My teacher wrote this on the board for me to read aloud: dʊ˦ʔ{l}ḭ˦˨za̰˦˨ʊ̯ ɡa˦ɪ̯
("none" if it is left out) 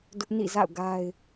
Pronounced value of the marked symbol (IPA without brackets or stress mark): n